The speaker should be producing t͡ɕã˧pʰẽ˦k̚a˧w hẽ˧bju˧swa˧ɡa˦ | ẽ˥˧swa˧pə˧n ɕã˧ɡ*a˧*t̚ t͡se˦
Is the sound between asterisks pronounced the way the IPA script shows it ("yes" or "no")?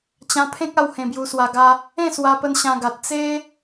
no